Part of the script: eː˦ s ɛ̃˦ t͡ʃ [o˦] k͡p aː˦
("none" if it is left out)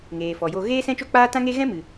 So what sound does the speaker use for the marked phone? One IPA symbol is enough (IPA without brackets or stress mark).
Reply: o˦